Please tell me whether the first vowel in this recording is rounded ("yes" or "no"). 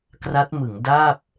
no